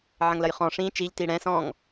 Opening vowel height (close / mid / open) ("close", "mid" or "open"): open